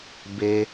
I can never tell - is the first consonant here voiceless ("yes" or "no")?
no